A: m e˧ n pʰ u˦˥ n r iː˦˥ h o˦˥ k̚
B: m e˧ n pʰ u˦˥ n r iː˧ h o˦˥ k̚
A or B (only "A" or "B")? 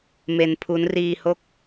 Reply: B